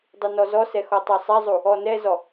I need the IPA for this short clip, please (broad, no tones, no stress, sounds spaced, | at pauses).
dˤ u n ɔ z ɔ s ɛ x ɔ tˤ ɑ sˤ ɛ zˤ u | ɔ n ɛ z ɔ